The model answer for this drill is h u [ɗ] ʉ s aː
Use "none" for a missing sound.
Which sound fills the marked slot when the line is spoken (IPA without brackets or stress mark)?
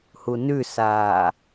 n